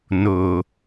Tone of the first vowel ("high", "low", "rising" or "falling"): low